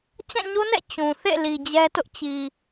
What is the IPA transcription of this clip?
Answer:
t͡ɕ ã˦˨ ɲ o˦ n ɛ̰˦˨ t͡ɕ ũ˨ θ ḛ˦˨ l i˨ d͡ʑ ɛ˦ t ʊ˦ ʔ t͡ɕ i˨

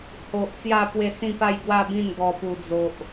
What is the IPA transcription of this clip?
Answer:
h o˨ ʔ t͡s j a˥˧ p w e˥˧ s ĩ˥˧ p a˥˧ j ɡ w a˥˧ b ĩ˥˧ n ɡ ɔ˦ p u˦ d͡z o˦ ʔ

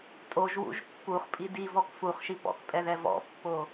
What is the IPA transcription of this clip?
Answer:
tʼ o ʒ w ṵ ʒ pː u χ pʼ i d i v ɔ k f u χ ʃ i p ɔ̰ k pʼ ɛ ð ɛ v ɔ̰ pː o

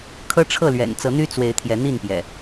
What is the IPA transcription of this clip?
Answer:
kʰ ɤ˦ ʈ͡ʂʰ ɤ˥˨ l ɥ ɛ̰˨˩ n t͡s ɤ˨˦ n̪ y˦ t͡s w e˨˦ ɪ̯ t̪ʰ j ɛ˨˦ n̪ i˥˨ n p j ɛ̰˨˩

